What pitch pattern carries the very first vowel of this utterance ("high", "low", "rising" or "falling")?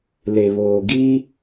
low